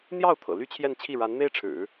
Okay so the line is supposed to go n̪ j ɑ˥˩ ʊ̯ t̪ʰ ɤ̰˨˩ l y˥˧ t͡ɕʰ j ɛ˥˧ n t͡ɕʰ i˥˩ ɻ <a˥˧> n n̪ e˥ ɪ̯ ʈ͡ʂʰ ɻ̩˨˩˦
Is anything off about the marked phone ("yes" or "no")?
yes